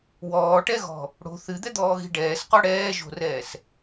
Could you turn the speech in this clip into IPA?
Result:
w ɔː ʈ ɛ ɣ ɔ̤ | ɽ o̤ θ ɨ d̪ ɛ d̪ ɔː ɣ i̤ ɖ ɛː s q ɔ ɽ ɛː ʒ o̤ r ɛː s

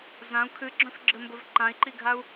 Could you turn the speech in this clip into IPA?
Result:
z ã u̯ kʰ ɨ ɡ͡ǁ œ̃ f ɡ͡ǁ ɘ m b ɘ v ǃ ã i̯ ǃ i ɡʱ a u̯

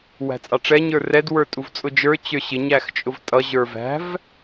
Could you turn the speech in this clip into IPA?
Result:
w æ̤ t͡sʼ ɑ ʈ͡ʂ ɛ ɲ ə˞ r ɛ d w ə˞ tʼ u v t͡sʼ ʊ d͡ʒ ə˞ t͡ɕ ə˞ ɕ ɪ ɲ æ x t͡ʃʼ ʊ v tʼ ʌ ʑ ə˞ v æ̤ v

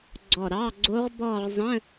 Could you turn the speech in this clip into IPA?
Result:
ɡ͡ǀ ɔ˧˩ ɾ ɑ˧˥˧ ɡ͡ǀ o˦˥ ʁ b ɔ˥˧ ʁ zˤ ə̃˧˥˧

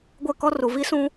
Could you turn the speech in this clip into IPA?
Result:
ɡʷ ɛ˦˨ k ɔ˦ r u˨ v i˦ s ũ˦

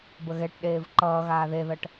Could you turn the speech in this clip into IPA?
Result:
b ə ɣ ɛ ʈ ɗ eː v ǃ ʌː ɣ aː ð e ð ʌ ʈ

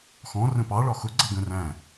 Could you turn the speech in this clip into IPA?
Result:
x ɔ̃ r ə̃ p ɑ ɭ ɒ x ʊ ɡ͡ǀ ʌ ɡ ə̃ r æ̃

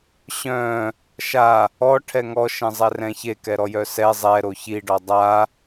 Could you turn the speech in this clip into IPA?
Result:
ɕ œ̃ | ʃ a | ɔ ʈʰ ɛ ŋ ɔ ʃ ɛ̃ zˤ ɛ r ɛ̃ ç e k ɛ ɾ ɔ j œ s ɛ zˤ ɛ ɾ o ç i ɖ ɔ dˤ a

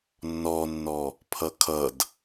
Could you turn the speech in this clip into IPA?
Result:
nː ɔ nː ɔ | pʰ ʌ kʰ ʌ d

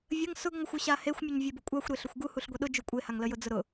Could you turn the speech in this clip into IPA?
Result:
vʲ ə ŋ s ʊ ɡ ŋʷ ə xʷ ʊ ɕ a h e xʷ mʲ u ɲ vʲ e b ʊ kʷʼ a xʷ ɾ e ɬ ʊ xʷ ɡ u h u ɬ ɡʷ e ɗ ʊ d͡ʒ u kʷʼ e h a ŋ l ə j ʊ d͡z ʊ ɾ ʊ

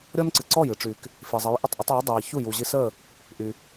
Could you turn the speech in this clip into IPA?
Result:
ɾʲ ɔ˥ n ǀ ɨ˩ ǀ ɔ˥˩ j ɨ˥˩ ʈ͡ʂ y˩ k | f i˩ zˤ ə˩˥ j ʔ ə˥˩ tˤ ʔ u˩˥ tˤ iː˩˥ dˤ iː˩ ç u˥˩ j u˩ ʑ i˧ s əː˥˩ | ʔ y˩

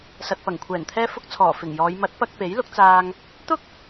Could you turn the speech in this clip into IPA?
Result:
s ɐ˨ t̚ p ɐ˨˩ ŋ kʷʰ ɛː˨˩ n t̪ʰ ɛː˥ f ʊ˥ k̚ t͡sʰ ɔː˨˩ f ɪ˨˩ ŋ j ɔː˨˧ j m ɐ˨˥ t̚ p ɐ˧ k̚ p e˨˥ j l ʊ˨˥ k̚ t͡s aː˧ ŋ | t̪ ʊ˥ k̚

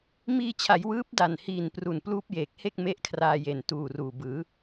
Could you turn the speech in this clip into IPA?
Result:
m iː˧ t͡ɕʰ a˩˦ j w ɯː˦˥ p̚ d a˨˩ n h iː˨˩ n p r u˨˩ n p l uː˦˥ p̚ j eː˨˩ k̚ h e˥˩ k̚ m e˦˥ ʔ kʰ r aː˧ j e˨˩ n t uː˨˩ r uː˨˩ b ɯː˩˦

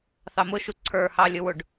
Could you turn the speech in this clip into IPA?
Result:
θ ɑ m ʊ ʃ u ǀʰ ə˞ h ɑ lʲ ʊ w ʊ ɖ

